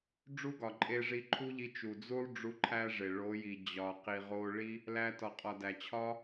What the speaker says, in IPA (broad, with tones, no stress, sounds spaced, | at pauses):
ɖ͡ʐ u˦ ɡ ɒ˨ ǃʼ e˧ ʐ i˧ ǃʰ u˦ ʎ i˧ t͡ʃ u˨ d͡z u˦ lˠ ɖ͡ʐ u˧ ǃʰ æ˦ ʐ e˨ ɭ o˨˦ j i˨ d͡ʑ ɒ˨ q i˨ ʁ o˧ ɭ i˦ | l æ˧ t ɒ˨ qʼ ɒ˨ d æ˨ t͡ɕʰ ɒ˦